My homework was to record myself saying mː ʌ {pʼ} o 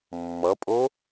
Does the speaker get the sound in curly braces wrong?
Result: no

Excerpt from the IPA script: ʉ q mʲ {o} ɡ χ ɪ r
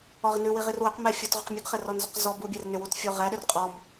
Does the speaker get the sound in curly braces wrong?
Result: yes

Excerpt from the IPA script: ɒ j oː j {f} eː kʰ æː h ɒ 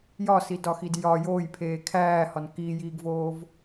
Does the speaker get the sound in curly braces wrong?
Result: yes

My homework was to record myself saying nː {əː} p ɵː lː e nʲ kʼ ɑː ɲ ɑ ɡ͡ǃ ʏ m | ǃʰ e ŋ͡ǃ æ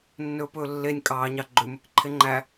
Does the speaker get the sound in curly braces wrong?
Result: yes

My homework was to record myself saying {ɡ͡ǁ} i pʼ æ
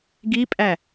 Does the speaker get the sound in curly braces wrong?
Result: yes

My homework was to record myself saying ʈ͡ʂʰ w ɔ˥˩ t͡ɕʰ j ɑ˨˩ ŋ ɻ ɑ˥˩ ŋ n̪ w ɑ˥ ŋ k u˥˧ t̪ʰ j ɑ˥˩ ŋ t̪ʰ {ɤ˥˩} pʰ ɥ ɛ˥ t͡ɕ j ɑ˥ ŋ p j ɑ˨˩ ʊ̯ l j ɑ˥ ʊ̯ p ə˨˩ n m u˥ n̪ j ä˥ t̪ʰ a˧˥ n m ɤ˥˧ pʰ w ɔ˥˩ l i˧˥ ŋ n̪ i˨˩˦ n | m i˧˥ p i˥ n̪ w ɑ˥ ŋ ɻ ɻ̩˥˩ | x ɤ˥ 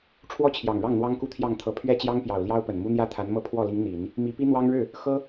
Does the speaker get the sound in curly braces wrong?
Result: yes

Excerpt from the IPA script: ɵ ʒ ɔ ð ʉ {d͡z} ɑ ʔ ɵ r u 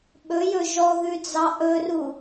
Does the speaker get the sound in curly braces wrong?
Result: no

